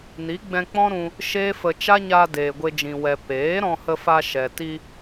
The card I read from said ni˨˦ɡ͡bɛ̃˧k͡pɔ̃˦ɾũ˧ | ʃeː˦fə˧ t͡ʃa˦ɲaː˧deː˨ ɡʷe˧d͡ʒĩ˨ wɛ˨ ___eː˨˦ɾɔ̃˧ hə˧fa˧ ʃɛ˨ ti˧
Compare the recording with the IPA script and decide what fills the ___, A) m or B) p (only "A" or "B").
B